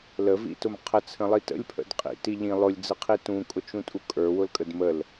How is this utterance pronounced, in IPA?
ləvḭtʊm qʰət͡sʰə̃lˠi tə̰lʲpʰə̰d qʼḭti ʎĩ lˠʊlʲd͡zɯqʰi tũkʼʊt͡ʃũtʼu kʼə˞wʊlkʼəd məl

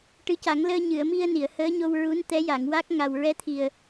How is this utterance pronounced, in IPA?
ʈɨ˧˥ca˨˩˦ŋ ləː˧ɲɨ˨˩˨ə̯mi˧ə̯ ni˨˩˨ə̯həː˧˥ɲo˧wɹu˧˥n t̪ɛ˧˥ja˨˩˨ŋwa˦˥k̚ ŋa˨˩w ɹɛ˧˥t̪ʰi˨˩ə̯

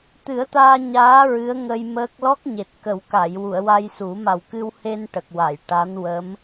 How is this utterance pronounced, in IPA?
t̪ɨ˨˩˦ə̯t̪aː˧ ɲaː˧˥ ɹɨ˧˥ə̯ŋə˧jməː˦˥k̚ lɔ˦˥k̚ɲe˨˩t̚kə˨˩˦wka˨˩˨j wu˨˩˨ə̯wa˧j su˨˩˦ ma˨˩wkɨ˧whe˧n ʈə˨˩k̚wa˨˩˨j ʈa˧˥nwə˧˥m

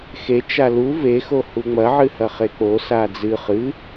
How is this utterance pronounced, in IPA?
xe t͡ʃalu vexo huŋ͡mɐʕɨhɐ χek͡po sad͡zɨ χɨ

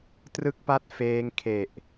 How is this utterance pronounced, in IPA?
trɯ˥˩k̚pa˥˩t̚ feː˦˥ŋkʰe˨˩ʔ

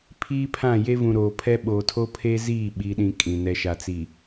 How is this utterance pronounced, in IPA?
pʰiː˦pʰã˦˨je˦vũ˨ ɾoː˨pʰɛ˦ ɓoː˨tʰo˦pʰe˦ziː˦˨ ɓi˦ɗĩ˦kʼĩ˨ nɛ˨ʃa˨t͡siː˨

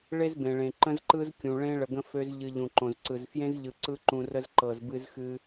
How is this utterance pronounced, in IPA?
ɭe˦zbẽ˨ɭẽ˨ ǃə̃˦zǃɯ˦z kʲũ˨ɭẽ˦ ɭə˨ɡə̃˦ fø˦z ʎɨ˨ ʎũ˨ǃõ˨zǀɯ˨z fjẽ˦zʎɯ˨ ǀɯ˦ǃũ˨rə˦z ǃɤ˨zbɨ˦zxɨ˦

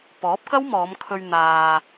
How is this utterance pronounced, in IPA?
pɔː˨˥p̚kɐ˥wmɔː˨˧m kʰɵ˧ɥ n̪aː˨

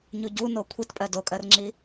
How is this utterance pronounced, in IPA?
ɲuɟu nokʷʰitpʼɜ dokʼɜrŋ͡ǁi

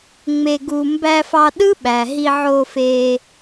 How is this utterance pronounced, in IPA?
ŋ͡me˧ɡu˧ mbæ˧fɑ˧ɗɯ˦ɓæ˨ ɦi˧ʕo˧fe˧

